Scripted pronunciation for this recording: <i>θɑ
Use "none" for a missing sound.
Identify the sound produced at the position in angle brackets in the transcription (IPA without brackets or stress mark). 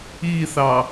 i